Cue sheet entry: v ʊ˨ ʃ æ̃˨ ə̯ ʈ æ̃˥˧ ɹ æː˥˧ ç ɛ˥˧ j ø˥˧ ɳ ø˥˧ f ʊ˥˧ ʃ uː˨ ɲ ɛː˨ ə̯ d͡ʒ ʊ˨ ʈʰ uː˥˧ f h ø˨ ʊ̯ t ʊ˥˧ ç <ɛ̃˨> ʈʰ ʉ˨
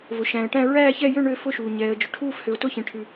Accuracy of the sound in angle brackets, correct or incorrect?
incorrect